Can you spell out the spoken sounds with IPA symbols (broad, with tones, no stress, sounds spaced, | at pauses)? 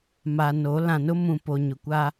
m a˨ n o˨˦ l ã˨ n ʊ˦ m ũ˨ p o˨ ɲ ʊ˨ kʷ a˦